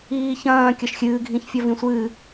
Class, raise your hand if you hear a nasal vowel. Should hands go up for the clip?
yes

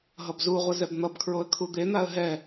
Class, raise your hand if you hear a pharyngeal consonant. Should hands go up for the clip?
no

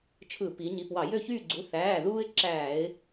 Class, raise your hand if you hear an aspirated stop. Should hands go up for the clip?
yes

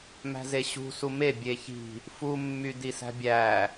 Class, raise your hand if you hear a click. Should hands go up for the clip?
no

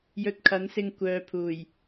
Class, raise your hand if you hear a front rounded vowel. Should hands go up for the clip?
yes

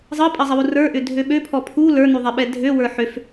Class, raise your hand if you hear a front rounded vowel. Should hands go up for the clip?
yes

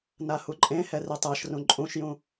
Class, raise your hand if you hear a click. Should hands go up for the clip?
yes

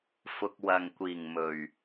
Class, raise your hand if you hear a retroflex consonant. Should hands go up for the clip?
no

